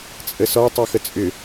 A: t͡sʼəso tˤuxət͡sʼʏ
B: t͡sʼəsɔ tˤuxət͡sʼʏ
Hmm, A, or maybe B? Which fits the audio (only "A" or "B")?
B